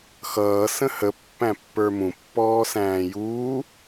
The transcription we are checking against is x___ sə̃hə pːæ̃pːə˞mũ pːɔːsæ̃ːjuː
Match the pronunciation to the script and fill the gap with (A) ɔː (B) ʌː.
B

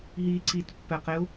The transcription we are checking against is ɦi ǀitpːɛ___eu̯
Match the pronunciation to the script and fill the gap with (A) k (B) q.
B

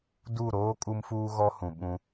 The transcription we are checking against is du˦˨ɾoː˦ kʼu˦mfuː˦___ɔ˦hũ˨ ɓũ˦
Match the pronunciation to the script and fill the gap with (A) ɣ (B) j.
A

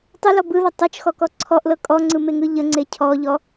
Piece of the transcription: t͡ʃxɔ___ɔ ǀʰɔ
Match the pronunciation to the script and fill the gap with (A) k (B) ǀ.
A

